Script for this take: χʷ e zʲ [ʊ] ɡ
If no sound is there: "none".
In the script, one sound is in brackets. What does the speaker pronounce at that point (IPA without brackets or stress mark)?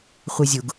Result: ʊ